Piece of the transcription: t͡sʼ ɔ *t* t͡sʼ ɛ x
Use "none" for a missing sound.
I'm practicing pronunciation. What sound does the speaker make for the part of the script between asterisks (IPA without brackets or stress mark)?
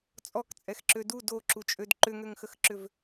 k